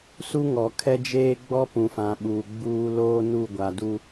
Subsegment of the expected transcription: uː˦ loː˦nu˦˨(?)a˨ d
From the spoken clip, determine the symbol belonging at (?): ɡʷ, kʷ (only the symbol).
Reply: ɡʷ